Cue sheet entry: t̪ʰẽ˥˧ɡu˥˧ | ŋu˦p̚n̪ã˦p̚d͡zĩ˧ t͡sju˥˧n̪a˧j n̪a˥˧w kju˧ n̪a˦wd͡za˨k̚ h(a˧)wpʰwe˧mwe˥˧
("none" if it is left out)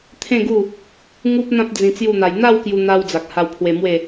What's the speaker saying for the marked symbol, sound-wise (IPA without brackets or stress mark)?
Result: a˧